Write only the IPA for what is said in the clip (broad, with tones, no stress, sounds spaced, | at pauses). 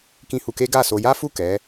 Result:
k ĩ˧ h u˧ k e˦ ɡ a˦˨ s o˧ j a˦ f u˦˨ k ɛ˨˦